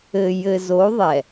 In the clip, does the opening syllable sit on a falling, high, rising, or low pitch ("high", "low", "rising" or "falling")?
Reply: low